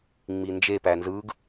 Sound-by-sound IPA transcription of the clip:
ŋ͡m i n d͡ʒ e p æ n z ɯ ɡ

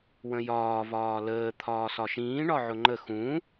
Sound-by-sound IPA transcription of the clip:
w ə̃ j ɒː v ɒː l əː t̪ʰ ɒː s ɒ ʃ ĩː ɳ ɒ ʕ ʊ ŋ͡ǃ ə x ũ

